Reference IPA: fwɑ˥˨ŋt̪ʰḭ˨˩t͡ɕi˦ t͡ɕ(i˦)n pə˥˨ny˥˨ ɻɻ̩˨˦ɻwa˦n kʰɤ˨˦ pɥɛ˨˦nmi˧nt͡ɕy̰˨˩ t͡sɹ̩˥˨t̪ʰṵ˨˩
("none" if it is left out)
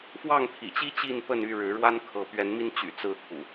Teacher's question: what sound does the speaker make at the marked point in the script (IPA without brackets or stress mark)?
i˥˨